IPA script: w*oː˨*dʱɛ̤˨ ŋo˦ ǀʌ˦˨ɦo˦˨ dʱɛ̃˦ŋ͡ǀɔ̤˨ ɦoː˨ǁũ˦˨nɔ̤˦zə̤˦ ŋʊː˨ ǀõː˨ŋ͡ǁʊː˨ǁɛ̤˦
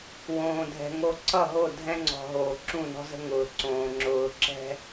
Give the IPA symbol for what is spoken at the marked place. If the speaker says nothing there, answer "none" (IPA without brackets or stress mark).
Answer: õː˨